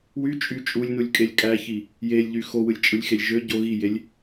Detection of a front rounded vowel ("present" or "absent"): present